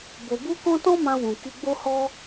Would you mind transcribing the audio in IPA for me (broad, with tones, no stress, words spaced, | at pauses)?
bo˧bu˦kɔ̃˦ tɔ̃˦mã˧wũ˨ ki˧ɡ͡bo˦hɔ˦